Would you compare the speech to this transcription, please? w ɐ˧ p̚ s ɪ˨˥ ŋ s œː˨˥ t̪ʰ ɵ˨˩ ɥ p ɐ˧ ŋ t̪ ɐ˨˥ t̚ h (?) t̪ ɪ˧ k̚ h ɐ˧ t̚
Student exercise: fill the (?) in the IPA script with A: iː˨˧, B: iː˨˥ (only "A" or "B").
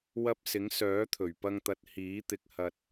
B